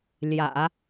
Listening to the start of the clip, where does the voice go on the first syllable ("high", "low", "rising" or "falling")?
low